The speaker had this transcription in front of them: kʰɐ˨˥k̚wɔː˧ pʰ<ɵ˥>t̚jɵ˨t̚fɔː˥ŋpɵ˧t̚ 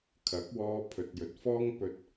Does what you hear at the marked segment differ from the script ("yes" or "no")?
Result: yes